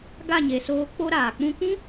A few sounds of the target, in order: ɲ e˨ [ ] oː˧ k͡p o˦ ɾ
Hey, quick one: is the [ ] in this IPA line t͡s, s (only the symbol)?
s